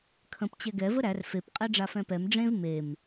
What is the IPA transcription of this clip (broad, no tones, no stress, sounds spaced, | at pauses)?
kʰ ə̃ p t͡ɕ ɛ ɡ ɛ v ə ɾ æ r f e p qʼ ɛ ɖ͡ʐ a f ɛ̃ p ɛ m ɖ͡ʐ ẽ v m e m